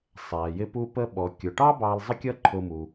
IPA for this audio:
sˤ æ˩ j ɪ˧ p u˧ p ə˧ ɓ ɔ˩ kʲ ʊ˩ ʈ ɑ˥ b ɑ˧ l zˤ ə˥ kʲ ʌ˥ ǃʰ ʊ˧ m u˩

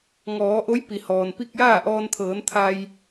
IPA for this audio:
ŋ ɔː˩˧ ʔ o˧˥ j p i˩ h ɔː˩ n p i˥˨ k̚ j aː˥˨ ʔ ɔː˧ n t̪ʰ ɤː˩˧ n t̪ʰ a˧ j

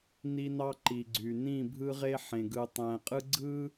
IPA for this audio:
n i˦ n ɑ˦ ǃ i˨ ɡ͡ǀ y˨ n ĩ˦˨ bʱ ɯ˦ ʁ e˦ ħ ẽ˨ ɡ ɯ˨ tˤ æ̃˨ qʼ ɯ˦ ɡ͡ǀ ɯ˦

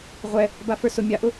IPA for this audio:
ʁʷ ɛ | b a f ə˞ s ʊ mʲ a ʔ ʊ

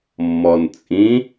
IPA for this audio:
mː ɔ n t͡sʼ ĩ

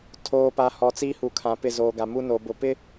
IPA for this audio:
tʰ oː˨ p a˨ h ɔ˨ t͡s iː˦ h u˨ kʰ ã˨ p ɪ˦˨ z oː˨ ɡ a˨ m u˦ n oː˨ b ʊ˨ p ɪ˦

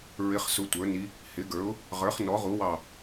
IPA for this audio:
ɹ ɪ˧˥ χ s ʊ˧˥ tʷ ə˞˩˥ n i˧˥ | h ɪ˩˥ ɡ ə˞˩˥ ʊ̯ | ʁ ə˞˩˥ χ n ɔ˩˥ ʁ u˩˥ w ɑ˧˩

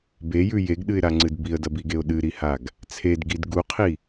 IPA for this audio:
b e j ʉ j e ɡ ɗ ɨ ɪ̯ ɾ a ŋ͡ǀ ɨ d b i ə̯ d ɐ b i ɡ e ʊ̯ ɗ ɨ ɾ i h a ɡ | t͡sʰ e d ɡ i d ɡ u qʰ i

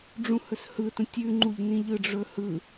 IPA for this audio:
ɖ͡ʐ ũ h ɵ s h ɯ t ə̃ tʲ ʉ ŋ͡ǃ u ʎ n ĩ ʎ ɯ ɖ͡ʐ ɵ h ɯ

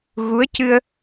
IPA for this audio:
ɣ u˧˥ ə̯ c ɨ˧ ə̯

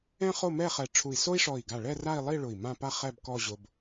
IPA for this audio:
ɛ̃˥ χ o˥˧ m ɛ˥˧ χ ɛ˧˩ ʈ͡ʂʰ u˧˩ i̯ s o˥ i̯ ʂ ɔ˧˩ i̯ ɡ a˧˩ ɭ ɛ˥˧ r a˥˧ i̯ lˠ i˥˧ ɭ ʊ˧˩ i̯ m ã˥˧ p a˥ χ ɛ˥˧ b k ɔ˥˧ ʑ ʊ˧ b

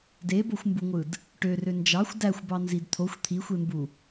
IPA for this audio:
d e b o xʷ m b u ŋʷ ɯ d | ʈ ø r ø n d͡ʒ ɑ xʷ d æ xʷ b ɑ n z i d t̪ʰ o xʷ t̪ʰ i xʷ e m b u

